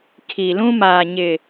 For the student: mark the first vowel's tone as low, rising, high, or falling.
low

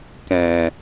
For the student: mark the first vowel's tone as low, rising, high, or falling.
low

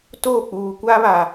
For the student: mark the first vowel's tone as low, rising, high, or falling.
falling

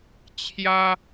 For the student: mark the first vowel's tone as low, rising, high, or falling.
high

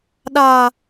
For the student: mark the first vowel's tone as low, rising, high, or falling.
low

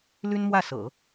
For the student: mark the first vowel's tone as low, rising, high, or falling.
high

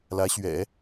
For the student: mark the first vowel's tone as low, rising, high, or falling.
rising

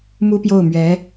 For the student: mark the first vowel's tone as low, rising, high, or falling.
high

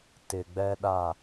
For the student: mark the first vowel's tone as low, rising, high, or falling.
low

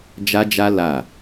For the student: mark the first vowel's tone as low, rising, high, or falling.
high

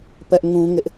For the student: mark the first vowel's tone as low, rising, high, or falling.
high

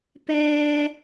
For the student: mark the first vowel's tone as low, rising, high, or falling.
low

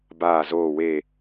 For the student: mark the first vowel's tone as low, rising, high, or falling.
falling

